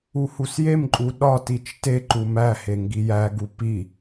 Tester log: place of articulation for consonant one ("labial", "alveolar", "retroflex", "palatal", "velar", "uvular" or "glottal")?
glottal